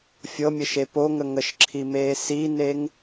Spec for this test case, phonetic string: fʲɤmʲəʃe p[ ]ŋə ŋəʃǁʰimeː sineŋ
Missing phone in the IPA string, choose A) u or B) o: B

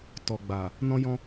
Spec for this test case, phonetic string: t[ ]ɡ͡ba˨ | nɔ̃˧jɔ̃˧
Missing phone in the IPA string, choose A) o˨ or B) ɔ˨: B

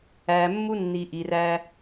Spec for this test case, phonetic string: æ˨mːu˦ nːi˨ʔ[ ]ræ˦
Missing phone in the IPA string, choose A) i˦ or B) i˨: B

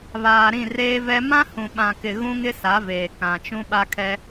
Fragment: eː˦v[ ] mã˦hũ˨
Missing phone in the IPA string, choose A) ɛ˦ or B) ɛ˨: A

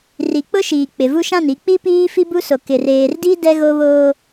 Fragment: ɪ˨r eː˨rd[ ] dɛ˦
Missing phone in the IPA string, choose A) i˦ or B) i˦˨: A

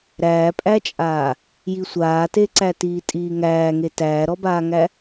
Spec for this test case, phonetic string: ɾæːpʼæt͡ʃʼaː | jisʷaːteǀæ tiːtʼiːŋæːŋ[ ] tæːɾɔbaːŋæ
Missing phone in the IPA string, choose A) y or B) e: B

